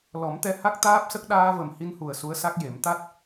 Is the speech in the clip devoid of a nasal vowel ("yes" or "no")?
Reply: yes